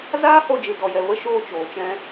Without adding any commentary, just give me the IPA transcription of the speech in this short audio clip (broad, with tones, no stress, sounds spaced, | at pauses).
z aː˦ h o˧ d͡ʒ ɨ˨ d ɔ˨ j ɛ˨ v ə˦˨ ʃ oː˧ t͡ʃ oː˨ t͡ʃ ɛ̃˧